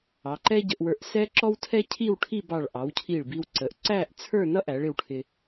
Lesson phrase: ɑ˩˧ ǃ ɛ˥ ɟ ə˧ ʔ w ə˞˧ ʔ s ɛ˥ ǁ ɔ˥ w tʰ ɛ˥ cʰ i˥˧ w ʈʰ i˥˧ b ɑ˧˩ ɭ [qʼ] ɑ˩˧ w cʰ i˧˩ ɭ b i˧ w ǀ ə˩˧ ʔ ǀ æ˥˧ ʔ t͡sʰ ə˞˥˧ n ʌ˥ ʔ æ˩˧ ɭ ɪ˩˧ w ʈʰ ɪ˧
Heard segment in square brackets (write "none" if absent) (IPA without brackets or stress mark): ʔ